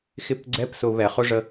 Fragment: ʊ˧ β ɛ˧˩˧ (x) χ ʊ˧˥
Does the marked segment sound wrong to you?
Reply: yes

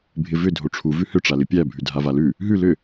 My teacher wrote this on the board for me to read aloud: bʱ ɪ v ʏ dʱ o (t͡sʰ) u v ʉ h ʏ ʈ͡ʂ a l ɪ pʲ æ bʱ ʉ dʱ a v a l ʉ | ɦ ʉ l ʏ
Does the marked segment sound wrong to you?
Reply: yes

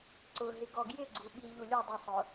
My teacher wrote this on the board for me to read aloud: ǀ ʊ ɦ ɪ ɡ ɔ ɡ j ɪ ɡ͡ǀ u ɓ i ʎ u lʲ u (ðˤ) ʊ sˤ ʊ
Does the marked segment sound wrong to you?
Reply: yes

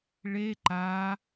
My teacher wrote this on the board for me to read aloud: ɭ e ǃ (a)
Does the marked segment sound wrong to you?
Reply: no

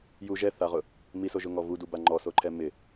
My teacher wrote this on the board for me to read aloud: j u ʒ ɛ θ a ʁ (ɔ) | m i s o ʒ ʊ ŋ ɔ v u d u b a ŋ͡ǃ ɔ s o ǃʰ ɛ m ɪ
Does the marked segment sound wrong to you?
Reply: yes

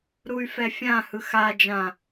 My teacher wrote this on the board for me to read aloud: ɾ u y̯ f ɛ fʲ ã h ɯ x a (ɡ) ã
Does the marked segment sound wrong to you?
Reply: yes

